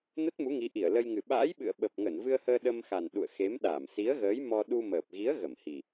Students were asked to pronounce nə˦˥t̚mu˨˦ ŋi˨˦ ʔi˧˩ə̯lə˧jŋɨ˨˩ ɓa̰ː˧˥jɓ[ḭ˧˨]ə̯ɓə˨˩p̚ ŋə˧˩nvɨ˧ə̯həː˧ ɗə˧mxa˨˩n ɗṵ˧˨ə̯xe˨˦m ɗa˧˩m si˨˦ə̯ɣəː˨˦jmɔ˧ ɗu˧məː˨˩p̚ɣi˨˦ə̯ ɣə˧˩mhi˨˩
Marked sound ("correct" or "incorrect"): incorrect